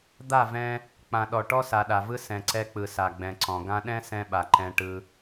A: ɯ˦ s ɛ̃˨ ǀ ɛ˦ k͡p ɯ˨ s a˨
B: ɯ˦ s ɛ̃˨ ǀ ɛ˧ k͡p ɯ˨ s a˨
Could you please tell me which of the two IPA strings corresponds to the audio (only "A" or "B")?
B